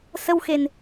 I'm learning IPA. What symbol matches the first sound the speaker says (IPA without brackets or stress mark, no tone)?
s